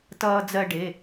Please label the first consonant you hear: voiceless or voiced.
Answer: voiceless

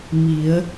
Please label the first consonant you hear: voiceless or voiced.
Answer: voiced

